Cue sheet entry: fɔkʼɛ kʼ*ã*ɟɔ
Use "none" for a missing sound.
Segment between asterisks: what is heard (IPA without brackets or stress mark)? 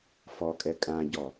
ã